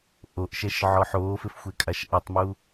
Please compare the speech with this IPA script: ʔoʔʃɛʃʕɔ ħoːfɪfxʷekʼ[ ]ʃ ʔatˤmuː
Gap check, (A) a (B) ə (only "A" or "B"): A